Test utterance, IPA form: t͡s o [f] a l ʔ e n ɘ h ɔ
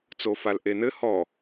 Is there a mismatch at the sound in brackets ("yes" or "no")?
no